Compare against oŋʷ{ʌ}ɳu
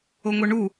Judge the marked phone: correct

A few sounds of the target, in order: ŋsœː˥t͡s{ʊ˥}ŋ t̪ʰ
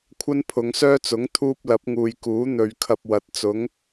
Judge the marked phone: incorrect: ʊ˨˥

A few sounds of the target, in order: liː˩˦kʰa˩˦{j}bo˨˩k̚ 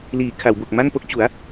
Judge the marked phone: incorrect: w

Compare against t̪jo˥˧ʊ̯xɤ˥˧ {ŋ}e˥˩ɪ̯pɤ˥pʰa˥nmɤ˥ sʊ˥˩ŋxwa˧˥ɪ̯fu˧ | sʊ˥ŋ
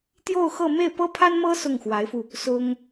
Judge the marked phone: incorrect: m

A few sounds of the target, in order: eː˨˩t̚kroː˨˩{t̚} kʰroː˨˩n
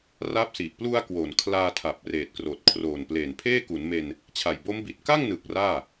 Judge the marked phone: correct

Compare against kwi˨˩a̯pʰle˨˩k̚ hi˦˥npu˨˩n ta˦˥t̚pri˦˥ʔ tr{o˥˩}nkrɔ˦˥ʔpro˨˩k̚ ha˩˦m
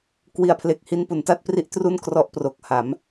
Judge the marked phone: incorrect: u˥˩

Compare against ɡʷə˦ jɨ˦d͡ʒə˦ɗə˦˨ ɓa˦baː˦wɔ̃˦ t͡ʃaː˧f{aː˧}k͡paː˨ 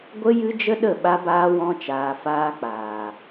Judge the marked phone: incorrect: aː˦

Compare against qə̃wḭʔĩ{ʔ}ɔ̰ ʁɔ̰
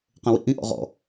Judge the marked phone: correct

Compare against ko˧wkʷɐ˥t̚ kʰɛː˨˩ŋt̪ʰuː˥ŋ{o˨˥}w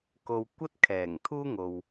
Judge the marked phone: incorrect: o˨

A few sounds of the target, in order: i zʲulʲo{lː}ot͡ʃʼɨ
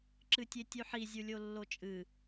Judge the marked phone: correct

